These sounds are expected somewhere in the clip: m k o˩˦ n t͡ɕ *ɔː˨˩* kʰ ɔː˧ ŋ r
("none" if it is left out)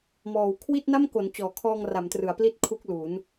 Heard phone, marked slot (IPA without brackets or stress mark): ɔː˨˩